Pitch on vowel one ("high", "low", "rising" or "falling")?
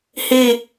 falling